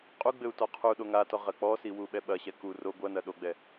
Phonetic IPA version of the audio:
qʼuɡ͡bɘu̯ tɔqʰuɗo ŋatɔ ʁɐk͡pɔsi wuɓɛɓɐɕɛ ku ro ɡʷɐnɐ ɗoɡ͡bɛ

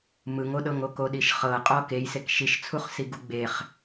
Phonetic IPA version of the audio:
mɯŋoɗɤŋo koɗiʃχɤ qʼɔkejsek ʃiʃt͡sʰuχsi ɡuɡ͡beχ

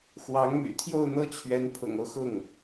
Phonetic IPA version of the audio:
xwɑ˧˥ŋmy̰˨˩ t̪ʰjo˥˧ʊ̯n̪ɤ˥˩t͡ɕʰɥɛ˧˥n pʰʊ̰˨˩ŋo˦ʊ̯xʊ˥˩ŋ

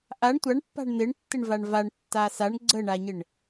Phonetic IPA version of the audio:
ʔaɳ tʷaɳpːa̤ɳ n̪ɪɳtːɪɳvaɳ vaɳtːa saɳ ɡ͡ǀəɳaɲɪɳ

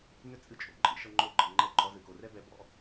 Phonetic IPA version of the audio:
nʏ˦t͡sʼɨ˧t͡ʃʼo̰˨ǃʼḭ˦ ʃɤ˦ŋ͡ǃo˦ɡ͡ǃɤ˧ ŋ͡ǃɛ˦ǃʼɔ˦ zɨ˨ko˨rɛ˦bɛ˧ bɔ̰˦

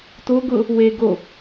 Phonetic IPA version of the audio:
to ɡʊ | we ɡo

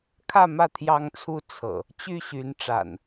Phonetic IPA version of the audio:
kʰä˥˨mä˥˨ t̪ʰjɑ˦ŋt͡sʰu˦ t͡sʰɤ̰˨˩ | t͡ɕy˥˨ɕy˨˦n ʈ͡ʂa̰˨˩n

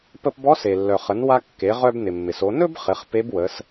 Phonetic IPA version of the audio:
pə˧pbɔ˧˥ se˩lːœ˩χə˩˧n wa˧kːe˩˧ʁœ˧b nɪ˩mːɪ˩so˩˧ nɵ˥bχɪ˩˧χ pe˧˥bwə˩˧s

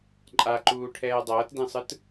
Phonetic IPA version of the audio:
ǃʼaǃuː ʈʰɛːdˤʌːtdẽsˤɯt

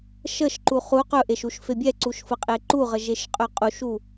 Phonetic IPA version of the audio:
ʃəʃǃu χu qɵʔeʃuʃfe bʲɛǀuʃfəqʼe ǃuʁəʒeʃqʼɵ qʼuʃu

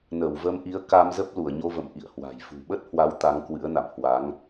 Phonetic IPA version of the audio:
nə˧˩wvə˧mʔi˨˦ə̯ ka˧mzə˦˥p̚ lu˧˩ə̯ɲo˧və̰˧˨m ʔḭ˧˨ə̯hwa̤˨˩j fṳ˨˩ɓə˦˥t̚hwa˨˦w t̪a˨˦ŋkwɨ̰˧˥ə̯na̰˧˨m hwa˨˦ŋ

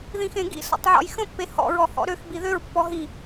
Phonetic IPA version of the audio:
ðĩxẽɡḭ sɔ̰tˤʕɔ̰jxə̃ pːehɔ̰ ɹɔhɔ̰ɾøx biðøɹ pːɔɦi

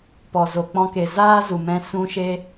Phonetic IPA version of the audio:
pɔ˨zo˨k͡pɔ̃˧ke˨ zaː˦zu˨mɛ̃˧ sũ˧ʃe˧

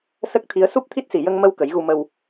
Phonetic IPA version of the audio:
sə˦˥k̚t̪ʰi˧˥ə̯ su˦˥p̚ t̪ʰi˦˥t̚si˨˩ jə˧ŋmə˧w kə˨˩˦jɣu˧mə˧w

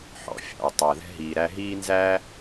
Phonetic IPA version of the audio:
ħɔ̰˨fʲɑ̰˨w tˤæ˨ðɛ̤˦ɦiː˨ ɾæ˧ɦiː˦nzæː˦

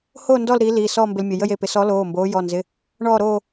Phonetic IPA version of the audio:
ho˥˧ ndɔ˥˧lɾiː˨˥liː˩˧˩ sɔː˥˧mbɪ˧lmʲə˩˧˩ jə˥˧j e˩˧˩pɪ˨˥ sɔ˨˥loː˩˧˩ mboː˨˥ jɔ˩˧˩nzɪ˩˧˩ | ɳɔː˥˧ɾoː˥˧

